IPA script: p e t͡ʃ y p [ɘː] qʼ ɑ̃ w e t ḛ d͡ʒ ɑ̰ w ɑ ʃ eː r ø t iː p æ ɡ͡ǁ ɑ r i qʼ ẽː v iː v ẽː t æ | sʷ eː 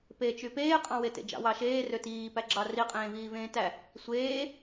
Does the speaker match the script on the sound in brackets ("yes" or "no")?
no